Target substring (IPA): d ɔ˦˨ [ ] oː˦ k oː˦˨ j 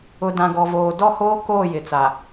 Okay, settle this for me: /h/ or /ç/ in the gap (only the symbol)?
h